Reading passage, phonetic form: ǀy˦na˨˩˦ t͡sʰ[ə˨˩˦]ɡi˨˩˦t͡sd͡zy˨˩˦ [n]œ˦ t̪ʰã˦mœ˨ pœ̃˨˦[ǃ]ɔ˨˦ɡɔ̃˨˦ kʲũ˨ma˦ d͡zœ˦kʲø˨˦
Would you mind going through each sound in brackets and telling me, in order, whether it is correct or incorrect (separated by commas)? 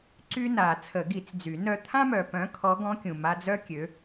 correct, correct, incorrect